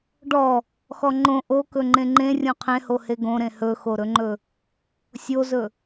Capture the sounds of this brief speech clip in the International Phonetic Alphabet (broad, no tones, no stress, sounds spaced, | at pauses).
ɖ ɔ | x ɔ ŋ͡ǃ õ ʔ o k ɵ ŋ͡ǃ ẽ ŋ͡ǃ ẽ rʲ õ qʰ ẽ h o h e ɡ õ ɾ ẽ h ɵ x o ɾ ɵ ŋ͡ǃ ɵ | sʲ o z ɵ